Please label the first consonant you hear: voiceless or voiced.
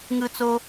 voiced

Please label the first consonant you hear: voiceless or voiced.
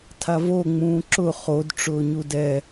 voiceless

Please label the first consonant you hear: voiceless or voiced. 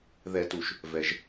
voiced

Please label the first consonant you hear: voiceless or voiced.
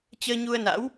voiceless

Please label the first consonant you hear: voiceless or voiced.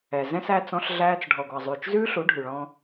voiced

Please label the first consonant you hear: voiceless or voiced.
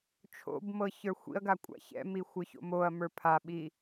voiceless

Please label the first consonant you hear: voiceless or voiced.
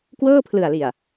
voiceless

